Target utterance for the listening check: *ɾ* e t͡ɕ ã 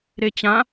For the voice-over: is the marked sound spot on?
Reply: yes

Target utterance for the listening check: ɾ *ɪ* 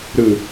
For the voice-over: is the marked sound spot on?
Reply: no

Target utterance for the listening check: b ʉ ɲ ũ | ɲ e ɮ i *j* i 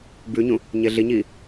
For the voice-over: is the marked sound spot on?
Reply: no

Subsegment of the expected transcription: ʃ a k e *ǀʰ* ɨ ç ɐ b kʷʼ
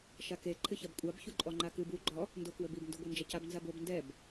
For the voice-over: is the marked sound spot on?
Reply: no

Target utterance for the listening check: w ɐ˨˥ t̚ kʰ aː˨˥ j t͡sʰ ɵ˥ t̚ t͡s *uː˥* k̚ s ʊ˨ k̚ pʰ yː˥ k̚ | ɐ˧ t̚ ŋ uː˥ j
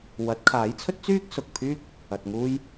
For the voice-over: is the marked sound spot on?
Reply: no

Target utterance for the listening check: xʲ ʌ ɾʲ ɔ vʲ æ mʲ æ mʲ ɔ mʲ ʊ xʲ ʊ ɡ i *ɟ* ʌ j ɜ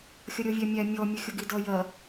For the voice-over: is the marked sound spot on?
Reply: no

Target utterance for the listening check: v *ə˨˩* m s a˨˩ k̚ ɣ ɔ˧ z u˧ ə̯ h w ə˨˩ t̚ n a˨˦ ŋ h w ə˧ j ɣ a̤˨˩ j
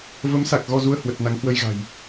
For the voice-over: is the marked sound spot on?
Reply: no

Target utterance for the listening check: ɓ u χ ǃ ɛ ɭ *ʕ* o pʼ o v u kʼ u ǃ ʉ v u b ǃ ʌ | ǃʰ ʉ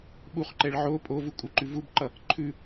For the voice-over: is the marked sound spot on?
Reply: yes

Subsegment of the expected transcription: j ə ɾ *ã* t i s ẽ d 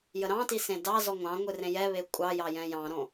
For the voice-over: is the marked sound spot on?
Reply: no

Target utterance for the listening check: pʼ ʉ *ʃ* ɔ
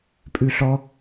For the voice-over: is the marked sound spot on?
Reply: no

